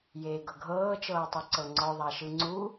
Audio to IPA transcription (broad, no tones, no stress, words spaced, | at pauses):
jeːɡɤɡʱɤː t͡ʃɤːtˤɯǀɤŋ͡ǀɔ ðˤaʃɯŋ͡ǀu